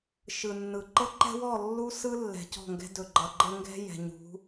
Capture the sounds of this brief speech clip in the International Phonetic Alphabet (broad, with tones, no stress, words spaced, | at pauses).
ʃɯ˨nːɯ˨ ǃɤ˦ǃɛ̤˦wɔ˦˨ lːu˦ sɯ˦lːɛ̤˨ cɔ̤˦˨ŋɡɛ̤˦ dɵ˨ ɡ͡ǃʌ˨ ɡ͡ǃɤ˦ŋɡɛ̤˦jɛ̤˨ ɲṳ˨˦